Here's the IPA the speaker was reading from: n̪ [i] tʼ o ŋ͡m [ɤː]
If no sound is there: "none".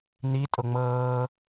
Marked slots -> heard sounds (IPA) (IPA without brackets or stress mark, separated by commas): i, ɤː